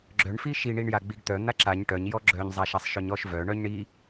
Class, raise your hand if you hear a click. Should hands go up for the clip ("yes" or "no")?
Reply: yes